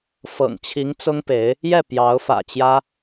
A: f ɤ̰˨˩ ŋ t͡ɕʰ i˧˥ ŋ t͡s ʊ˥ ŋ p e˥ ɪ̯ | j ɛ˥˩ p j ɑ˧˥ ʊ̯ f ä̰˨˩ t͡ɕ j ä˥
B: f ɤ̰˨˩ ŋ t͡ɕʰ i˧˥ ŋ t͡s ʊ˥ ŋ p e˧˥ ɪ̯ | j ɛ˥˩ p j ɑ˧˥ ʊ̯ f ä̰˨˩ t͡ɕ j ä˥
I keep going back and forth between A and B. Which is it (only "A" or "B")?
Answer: B